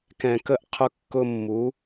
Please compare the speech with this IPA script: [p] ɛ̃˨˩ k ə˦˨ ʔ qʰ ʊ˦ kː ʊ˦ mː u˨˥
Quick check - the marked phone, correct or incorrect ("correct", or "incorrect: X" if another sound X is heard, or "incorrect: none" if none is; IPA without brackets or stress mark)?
incorrect: k